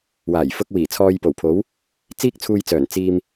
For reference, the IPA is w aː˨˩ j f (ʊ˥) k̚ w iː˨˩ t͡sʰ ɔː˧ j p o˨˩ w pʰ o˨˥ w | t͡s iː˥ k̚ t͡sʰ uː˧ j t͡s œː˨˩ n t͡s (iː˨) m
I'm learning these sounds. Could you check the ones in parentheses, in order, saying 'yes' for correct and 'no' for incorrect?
no, yes

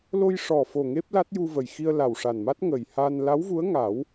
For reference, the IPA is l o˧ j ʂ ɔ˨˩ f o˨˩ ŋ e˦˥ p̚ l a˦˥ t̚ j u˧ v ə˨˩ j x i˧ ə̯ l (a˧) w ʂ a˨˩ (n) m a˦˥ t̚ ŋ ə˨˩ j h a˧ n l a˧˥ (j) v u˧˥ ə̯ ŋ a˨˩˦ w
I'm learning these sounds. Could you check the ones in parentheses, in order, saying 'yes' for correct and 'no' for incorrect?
no, yes, no

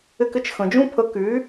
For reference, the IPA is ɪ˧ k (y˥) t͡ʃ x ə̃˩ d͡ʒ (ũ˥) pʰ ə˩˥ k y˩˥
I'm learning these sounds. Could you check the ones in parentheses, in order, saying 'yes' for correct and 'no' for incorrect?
no, yes

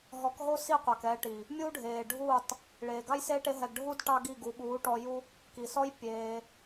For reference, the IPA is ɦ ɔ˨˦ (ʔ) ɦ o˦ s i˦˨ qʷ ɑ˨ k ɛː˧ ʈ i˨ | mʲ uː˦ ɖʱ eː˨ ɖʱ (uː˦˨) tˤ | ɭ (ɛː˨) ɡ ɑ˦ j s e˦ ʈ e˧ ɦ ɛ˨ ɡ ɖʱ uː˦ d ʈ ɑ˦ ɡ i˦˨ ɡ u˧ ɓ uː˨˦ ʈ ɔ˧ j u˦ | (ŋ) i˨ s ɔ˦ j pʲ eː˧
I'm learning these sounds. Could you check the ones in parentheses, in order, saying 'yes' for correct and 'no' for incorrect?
no, yes, no, no

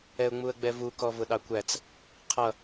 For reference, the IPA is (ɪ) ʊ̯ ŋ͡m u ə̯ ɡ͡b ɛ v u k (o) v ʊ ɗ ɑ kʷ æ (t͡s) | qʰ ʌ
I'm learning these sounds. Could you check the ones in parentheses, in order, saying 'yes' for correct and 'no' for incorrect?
no, no, yes

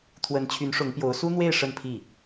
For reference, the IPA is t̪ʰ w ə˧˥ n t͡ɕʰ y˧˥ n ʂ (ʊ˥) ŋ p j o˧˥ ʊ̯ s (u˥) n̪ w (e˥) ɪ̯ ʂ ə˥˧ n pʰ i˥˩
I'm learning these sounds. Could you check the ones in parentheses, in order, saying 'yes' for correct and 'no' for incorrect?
no, yes, no

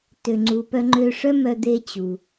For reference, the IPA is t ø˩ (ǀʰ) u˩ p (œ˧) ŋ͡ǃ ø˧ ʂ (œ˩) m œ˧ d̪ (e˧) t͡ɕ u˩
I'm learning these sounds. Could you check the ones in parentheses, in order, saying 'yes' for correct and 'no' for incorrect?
no, yes, no, yes

